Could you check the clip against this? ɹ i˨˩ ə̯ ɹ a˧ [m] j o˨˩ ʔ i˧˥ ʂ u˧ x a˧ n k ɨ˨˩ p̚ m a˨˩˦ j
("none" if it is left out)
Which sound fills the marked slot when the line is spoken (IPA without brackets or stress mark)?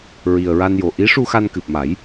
n